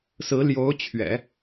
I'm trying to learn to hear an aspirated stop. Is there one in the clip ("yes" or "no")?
yes